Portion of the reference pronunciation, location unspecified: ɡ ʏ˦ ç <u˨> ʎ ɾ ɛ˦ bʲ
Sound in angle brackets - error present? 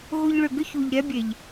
no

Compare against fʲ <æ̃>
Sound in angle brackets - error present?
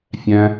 no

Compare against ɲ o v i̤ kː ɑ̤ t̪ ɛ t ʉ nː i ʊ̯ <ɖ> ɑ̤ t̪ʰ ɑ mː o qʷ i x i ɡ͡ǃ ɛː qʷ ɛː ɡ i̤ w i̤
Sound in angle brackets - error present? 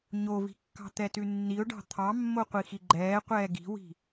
no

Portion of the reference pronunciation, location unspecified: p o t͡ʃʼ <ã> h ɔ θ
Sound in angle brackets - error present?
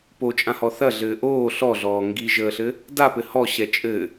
no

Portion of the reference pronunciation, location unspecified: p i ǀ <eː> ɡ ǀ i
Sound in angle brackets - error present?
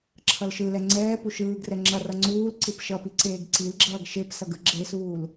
no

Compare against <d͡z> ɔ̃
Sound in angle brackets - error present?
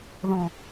yes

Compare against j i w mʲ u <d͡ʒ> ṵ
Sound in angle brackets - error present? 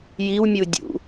yes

